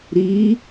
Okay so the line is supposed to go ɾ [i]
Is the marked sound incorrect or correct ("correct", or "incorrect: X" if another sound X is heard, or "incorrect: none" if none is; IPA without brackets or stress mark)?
correct